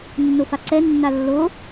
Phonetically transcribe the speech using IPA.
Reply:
nː o f a ǀ ɛ nː a lː o

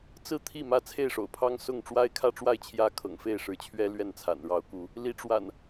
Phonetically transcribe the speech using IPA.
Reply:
t͡s ɹ̩˥˨ t̪ʰ i˥˨ m ä˥˨ t͡sʰ e˥˨ ɪ̯ ʂ o̰˨˩ ʊ̯ pʰ ɑ˦ ŋ s ʊ˥˨ ŋ ʈ͡ʂ w a˦ ɪ̯ kʰ ä˥˨ ʈ͡ʂ w a˥˨ ɪ̯ t͡ɕʰ j ä˦ kʰ ɤ̰˨˩ ŋ f e˥˨ ɪ̯ ʂ ɻ̩˨˦ t͡ɕʰ ɥ ɛ˦ l ɥ ɛ˥˨ n t͡sʰ a̰˨˩ n ɻ ɑ˨˦ ʊ̯ k u˨˦ | l i˨˦ ʈ͡ʂ w a̰˨˩ n

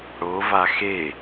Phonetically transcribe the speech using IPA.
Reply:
ɽ o v a x e

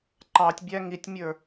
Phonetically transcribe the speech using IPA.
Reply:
ǃ ɑ tʲ bʲ æ ŋ i tʲ mʲ ə˞

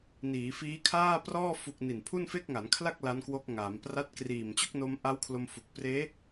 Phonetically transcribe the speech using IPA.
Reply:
n iː˩˦ f iː˦˥ kʰ aː˥˩ p r ɔː˥˩ f u˨˩ k̚ n i˨˩ n pʰ u˥˩ n f e˥˩ k̚ ŋ a˩˦ n kʰ l a˥˩ k̚ l a˦˥ n k w o˦˥ k̚ ŋ aː˩˦ m p r a˥˩ t̚ k r iː˨˩ m t͡ɕ o˥˩ k̚ n o˧ m ʔ a˦˥ w kʰ l o˧ m f u˨˩ k̚ p r eː˦˥

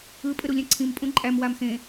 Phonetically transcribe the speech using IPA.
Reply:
ɯ pʼ ɘ ɾ u lʲ ɛ̃ ǀʰ ĩ m pʼ ũ ǃʼ æ m w a m x ẽ

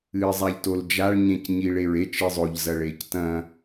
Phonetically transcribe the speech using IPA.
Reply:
ɨː zˤ a ʎ t o l d͡ʒ a ɭ ɲ ẽ c ɲ i ɭ e ɹ e t͡ʃ ɨ zˤ o ʎ z ɐ ɭ e c t ɐ̃

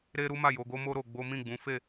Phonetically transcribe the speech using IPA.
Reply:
ɾ e˦ ɾ u˦ m a˦˨ j o˧ ɡ o˦ m o˦ ɾ o˧ ɡ͡b o˦ m ĩ˦˨ ɡ͡b ũ˨˦ f e˦˨

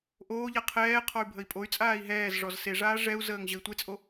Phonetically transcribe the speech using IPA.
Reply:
ʔ oː ʎ a qʰ ɛː qʰ ɔ y̯ bʱ ə i̯ pʼ o y̯ t͡sʼ aː i̯ ɦ ɛː z ʐ ɔ z s e ʐ aː ʐ ɛ u̯ z əː ŋ ʑ ə i̯ tʷ e t͡sʼ o

